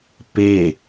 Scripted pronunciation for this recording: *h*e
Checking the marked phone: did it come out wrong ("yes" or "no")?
yes